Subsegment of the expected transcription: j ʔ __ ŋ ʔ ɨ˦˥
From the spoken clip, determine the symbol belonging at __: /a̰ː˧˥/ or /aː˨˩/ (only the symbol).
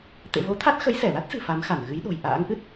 a̰ː˧˥